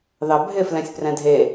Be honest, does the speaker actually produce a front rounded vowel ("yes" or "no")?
no